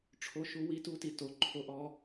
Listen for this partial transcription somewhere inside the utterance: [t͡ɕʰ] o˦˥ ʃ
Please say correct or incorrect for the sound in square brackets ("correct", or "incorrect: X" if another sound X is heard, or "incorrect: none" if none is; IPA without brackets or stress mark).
incorrect: ʈ͡ʂʰ